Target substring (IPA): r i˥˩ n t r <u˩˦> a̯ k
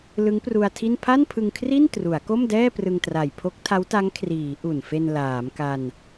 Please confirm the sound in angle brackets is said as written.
yes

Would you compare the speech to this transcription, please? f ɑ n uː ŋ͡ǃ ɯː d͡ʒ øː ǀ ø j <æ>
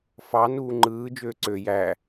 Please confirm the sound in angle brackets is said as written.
yes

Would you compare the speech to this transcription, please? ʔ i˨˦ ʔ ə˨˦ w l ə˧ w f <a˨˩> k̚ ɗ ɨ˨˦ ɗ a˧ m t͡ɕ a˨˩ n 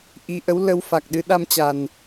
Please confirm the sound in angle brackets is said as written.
yes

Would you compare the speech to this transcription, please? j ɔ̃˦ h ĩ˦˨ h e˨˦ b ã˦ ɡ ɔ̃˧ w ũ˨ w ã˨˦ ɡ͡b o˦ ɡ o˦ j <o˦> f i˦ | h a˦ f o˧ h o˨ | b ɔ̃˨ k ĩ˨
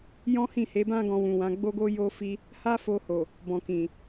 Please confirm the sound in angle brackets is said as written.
yes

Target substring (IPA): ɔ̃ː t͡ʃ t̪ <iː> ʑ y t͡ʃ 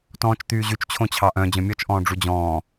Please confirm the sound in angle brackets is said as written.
no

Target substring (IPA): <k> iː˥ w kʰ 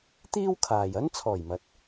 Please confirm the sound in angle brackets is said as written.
no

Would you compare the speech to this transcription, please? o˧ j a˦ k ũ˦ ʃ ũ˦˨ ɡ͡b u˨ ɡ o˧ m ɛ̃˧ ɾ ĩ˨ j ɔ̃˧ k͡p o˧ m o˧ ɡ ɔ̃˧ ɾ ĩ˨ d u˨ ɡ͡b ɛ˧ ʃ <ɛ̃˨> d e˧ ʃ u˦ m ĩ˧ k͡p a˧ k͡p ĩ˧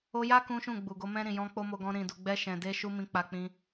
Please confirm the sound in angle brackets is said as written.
yes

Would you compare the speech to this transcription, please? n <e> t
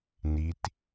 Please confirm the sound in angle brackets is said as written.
no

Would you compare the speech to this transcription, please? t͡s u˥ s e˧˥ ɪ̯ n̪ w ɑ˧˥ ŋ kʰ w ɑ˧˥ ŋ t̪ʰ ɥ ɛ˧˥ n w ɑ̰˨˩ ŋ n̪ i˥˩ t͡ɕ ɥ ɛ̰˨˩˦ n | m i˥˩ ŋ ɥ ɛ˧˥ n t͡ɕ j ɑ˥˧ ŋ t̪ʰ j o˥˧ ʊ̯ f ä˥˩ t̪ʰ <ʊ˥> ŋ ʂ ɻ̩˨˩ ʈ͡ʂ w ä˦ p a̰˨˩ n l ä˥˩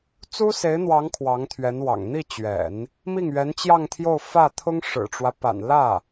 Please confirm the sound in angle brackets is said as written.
yes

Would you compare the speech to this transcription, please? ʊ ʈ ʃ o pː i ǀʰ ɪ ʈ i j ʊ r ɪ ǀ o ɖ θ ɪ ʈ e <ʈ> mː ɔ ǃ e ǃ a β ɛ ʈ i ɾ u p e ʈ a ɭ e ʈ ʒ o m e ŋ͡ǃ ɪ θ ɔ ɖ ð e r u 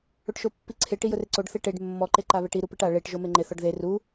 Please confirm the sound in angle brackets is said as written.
no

